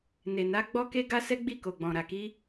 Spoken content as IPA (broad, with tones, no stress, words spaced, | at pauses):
ne˨na˧ ɡ͡bɔ˧ke˧ɡa˧ sɛ˦ɡ͡bi˦˨ko˨ɡ͡bɔ̃˨ ɾa˨ki˧